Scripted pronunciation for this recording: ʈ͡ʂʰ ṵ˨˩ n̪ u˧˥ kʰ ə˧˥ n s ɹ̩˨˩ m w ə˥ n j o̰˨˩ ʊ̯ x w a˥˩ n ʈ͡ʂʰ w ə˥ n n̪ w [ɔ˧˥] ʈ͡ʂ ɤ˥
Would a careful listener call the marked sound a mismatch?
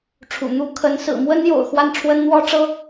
yes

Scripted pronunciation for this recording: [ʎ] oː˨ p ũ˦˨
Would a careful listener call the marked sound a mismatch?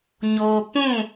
yes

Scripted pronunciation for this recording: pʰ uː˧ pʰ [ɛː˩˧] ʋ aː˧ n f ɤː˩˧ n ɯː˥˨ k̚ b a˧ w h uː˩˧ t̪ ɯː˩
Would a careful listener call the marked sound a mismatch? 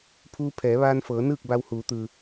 no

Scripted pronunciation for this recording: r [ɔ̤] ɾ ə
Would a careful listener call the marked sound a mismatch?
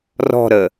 no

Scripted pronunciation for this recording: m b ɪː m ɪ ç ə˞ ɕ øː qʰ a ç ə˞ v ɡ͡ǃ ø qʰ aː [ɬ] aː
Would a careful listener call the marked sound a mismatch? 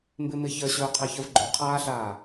no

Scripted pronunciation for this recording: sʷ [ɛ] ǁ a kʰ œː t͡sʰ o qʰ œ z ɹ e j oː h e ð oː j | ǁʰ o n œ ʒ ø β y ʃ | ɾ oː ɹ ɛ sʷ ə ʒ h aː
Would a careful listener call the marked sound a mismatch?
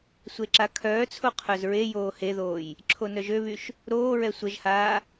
yes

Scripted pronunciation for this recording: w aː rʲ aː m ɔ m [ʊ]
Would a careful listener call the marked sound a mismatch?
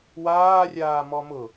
no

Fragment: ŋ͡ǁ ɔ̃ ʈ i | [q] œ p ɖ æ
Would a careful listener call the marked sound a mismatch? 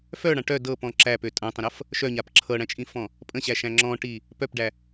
yes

